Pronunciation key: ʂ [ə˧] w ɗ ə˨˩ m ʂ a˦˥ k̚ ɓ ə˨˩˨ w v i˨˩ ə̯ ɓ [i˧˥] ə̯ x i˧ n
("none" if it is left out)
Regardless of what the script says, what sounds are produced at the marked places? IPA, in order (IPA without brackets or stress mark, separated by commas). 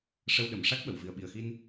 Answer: ə˧, i˨˩